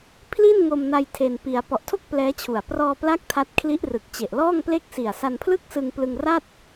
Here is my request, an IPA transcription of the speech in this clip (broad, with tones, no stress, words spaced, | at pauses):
pʰli˥˩nŋo˧mna˧j tʰe˧npi˧a̯ pɔ˨˩ʔtʰo˥˩k̚ plɛː˦˥t͡ɕʰu˨˩a̯ prɔː˧pla˦˥k̚ tʰa˦˥t̚kʰli˦˥ʔrɯ˨˩k̚ t͡ɕe˨˩ʔlɔː˥˩ŋple˥˩k̚ si˨˩a̯sa˧npʰlɯ˥˩k̚sɯ˧ŋ plɯ˧ŋra˥˩t̚